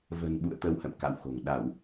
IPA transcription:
v ə̤˨˩ n ɓ ṵ˧˨ ə̯ t̪ ə˧ w h ə̰˧˨ m k a̰˧˨ w x o̤˨˩ ŋ ɗ a˧˩˨ w

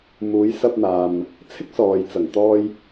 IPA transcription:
m uː˨˧ j s ɐ˧ p̚ n̪ aː˨ m | t͡sʰ ɪ˥ k̚ s ɔː˨ j t͡s ɐ˨˩ ŋ t̪ ɔː˧ j

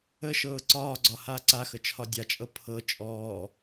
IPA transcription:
ə ʃ ɤː ǀ ɒː ɡ͡ǀ ɒ h aː ǀ a x ə t͡ʃʰ ɒ dʲ a t͡ʃʼ ɤ pʰ ɤ t͡ʃʼ ɔː

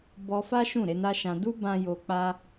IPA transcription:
b ɔ˧ f a˦ ʃ ũ˦˨ ɾ e˨˦ n a˦ ʃ ã˧ d u˦ b ã˧ j o˧ k͡p a˦

